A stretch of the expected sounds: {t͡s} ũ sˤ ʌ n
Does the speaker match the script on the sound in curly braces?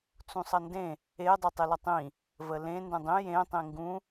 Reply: yes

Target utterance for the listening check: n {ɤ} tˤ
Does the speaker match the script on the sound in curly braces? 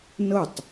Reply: yes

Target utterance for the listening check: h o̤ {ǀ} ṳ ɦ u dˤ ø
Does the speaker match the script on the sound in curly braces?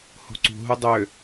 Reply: yes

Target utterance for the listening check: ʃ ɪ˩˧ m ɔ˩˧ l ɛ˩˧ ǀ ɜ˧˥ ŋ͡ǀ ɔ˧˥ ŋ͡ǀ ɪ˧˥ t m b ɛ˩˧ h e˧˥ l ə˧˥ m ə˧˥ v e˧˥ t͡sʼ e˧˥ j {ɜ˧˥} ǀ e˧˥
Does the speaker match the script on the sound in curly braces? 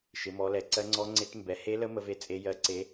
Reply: yes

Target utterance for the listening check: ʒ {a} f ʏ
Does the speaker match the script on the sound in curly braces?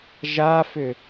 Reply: yes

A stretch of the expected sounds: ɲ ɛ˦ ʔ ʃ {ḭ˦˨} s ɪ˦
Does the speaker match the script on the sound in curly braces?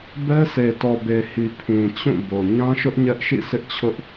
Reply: yes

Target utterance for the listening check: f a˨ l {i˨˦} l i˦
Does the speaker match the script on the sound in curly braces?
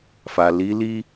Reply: yes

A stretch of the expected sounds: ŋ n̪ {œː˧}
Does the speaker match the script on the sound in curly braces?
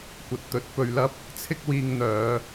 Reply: no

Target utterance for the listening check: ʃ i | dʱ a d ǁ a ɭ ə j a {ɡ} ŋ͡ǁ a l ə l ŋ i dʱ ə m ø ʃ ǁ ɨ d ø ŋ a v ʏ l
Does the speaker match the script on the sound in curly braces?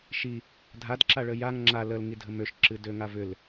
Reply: no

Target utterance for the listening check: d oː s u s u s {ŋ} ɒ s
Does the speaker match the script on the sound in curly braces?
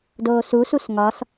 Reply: yes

